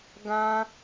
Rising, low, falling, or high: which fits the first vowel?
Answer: high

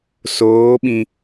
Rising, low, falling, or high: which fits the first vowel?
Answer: rising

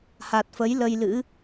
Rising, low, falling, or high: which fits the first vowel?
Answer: low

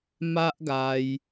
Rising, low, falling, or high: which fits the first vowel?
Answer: high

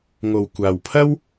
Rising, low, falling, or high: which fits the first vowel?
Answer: low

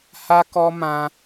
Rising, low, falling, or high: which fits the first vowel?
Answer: high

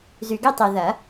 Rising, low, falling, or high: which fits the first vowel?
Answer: low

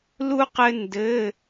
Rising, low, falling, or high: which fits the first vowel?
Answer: high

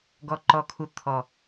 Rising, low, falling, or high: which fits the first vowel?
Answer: low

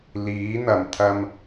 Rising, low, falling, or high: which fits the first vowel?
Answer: rising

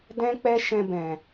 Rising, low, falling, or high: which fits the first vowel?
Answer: high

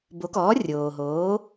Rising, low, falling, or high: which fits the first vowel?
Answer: rising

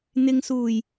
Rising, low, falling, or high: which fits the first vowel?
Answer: low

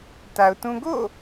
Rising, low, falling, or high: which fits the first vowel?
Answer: low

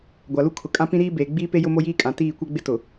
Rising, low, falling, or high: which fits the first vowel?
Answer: low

